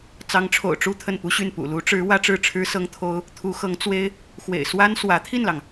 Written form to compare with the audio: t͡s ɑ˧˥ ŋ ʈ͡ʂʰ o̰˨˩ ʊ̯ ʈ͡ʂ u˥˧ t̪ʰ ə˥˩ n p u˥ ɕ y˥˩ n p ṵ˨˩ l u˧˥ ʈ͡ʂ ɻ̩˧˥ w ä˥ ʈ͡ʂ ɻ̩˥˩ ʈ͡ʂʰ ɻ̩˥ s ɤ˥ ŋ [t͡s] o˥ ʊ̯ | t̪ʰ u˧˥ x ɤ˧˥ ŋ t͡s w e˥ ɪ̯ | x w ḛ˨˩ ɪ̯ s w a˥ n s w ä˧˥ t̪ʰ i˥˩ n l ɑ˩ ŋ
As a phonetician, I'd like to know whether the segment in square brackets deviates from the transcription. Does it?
yes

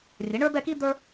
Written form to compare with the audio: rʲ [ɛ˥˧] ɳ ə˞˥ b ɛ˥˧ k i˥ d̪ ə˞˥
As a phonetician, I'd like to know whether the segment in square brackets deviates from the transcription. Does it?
yes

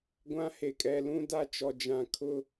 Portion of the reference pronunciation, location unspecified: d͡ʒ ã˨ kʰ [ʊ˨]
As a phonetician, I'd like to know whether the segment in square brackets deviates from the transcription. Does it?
yes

